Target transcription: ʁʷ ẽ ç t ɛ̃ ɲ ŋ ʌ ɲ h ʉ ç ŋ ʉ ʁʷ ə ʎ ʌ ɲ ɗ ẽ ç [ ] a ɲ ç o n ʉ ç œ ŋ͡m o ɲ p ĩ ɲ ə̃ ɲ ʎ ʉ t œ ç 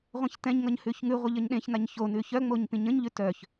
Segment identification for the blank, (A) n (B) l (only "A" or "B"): A